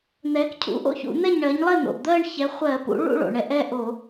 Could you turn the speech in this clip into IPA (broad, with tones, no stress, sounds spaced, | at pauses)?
n̪ ɛ˩˥ k cʰ ṵ˩˥ ʔ o̰˥˩ ç ṵ˧˩˧ n̪ ɛ˥˩ ɲ ɳ ɜ˩˥ ɲ lˠ ɛ˥˩ n̪ o̰˩ ʔ d̪ ɜ˥˧ ɳ ç ɛ˩˥ χʷ ɜ˧˩˧ p ṵ˩˥ ɭ ṵ˥˧ ɭ o̰˩ ɳ ɛ˩˥ ʔ ɛ˥˩ ʔ o˧˩˧